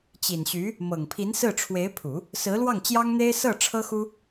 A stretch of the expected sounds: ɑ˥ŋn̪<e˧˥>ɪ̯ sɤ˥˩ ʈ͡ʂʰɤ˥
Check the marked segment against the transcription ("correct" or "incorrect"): incorrect